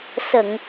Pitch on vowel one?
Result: low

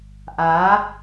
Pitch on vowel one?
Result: rising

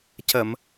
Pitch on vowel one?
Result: low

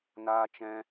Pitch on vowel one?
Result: high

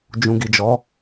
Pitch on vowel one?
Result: low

